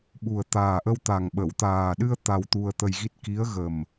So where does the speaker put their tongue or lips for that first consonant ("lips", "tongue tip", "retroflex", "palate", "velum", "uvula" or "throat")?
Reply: lips